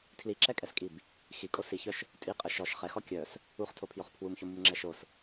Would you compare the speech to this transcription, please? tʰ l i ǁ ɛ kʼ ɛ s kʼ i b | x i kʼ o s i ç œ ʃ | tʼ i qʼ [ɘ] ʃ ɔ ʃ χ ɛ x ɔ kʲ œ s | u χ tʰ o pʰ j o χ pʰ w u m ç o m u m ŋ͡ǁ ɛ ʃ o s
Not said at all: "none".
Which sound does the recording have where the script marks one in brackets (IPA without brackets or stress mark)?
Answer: ɘ